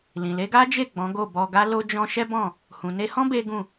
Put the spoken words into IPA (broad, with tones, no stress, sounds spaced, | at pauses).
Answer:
l ĩ˨ l e˨˦ ɡ a˦ d͡ʒ e˦˨ ɡ͡b ɔ̃˨˦ ɡ o˦˨ b ɔ˧ ɡ a˦ l o˦ d͡ʒ ɔ̃˦ ʃ ɛ˦ b ɔ̃˦˨ | h ũ˨ n e˧ h ɔ̃˦ b e˦ ɡ ũ˦˨